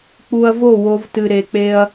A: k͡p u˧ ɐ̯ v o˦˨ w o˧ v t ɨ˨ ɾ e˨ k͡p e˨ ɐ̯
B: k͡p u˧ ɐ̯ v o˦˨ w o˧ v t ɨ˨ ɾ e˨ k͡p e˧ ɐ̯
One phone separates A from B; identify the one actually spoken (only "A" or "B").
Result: B